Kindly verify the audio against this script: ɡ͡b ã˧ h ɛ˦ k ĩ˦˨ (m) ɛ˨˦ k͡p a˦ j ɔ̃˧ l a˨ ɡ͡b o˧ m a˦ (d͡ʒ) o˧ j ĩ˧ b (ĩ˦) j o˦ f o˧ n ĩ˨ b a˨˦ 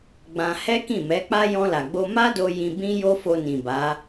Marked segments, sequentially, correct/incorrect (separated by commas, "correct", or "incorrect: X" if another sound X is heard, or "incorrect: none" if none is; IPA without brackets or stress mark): correct, incorrect: d, correct